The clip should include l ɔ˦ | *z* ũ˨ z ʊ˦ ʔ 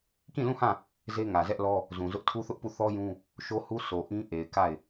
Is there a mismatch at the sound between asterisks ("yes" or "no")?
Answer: no